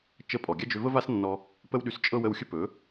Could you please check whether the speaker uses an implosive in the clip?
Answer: yes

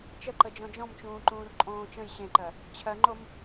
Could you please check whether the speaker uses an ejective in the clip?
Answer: yes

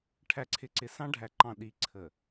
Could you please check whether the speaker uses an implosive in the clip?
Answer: yes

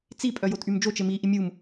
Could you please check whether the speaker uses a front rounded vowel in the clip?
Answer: yes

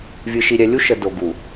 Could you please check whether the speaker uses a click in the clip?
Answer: no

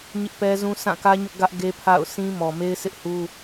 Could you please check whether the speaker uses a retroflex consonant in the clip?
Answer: no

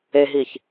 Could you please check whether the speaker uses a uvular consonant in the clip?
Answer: no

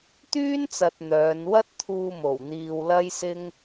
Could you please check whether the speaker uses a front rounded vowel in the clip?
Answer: yes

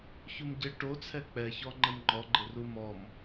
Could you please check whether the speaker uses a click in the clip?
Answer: yes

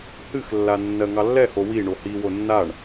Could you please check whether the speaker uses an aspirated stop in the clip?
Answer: no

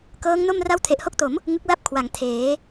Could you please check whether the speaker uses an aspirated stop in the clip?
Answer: yes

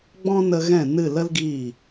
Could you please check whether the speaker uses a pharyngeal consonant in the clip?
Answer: no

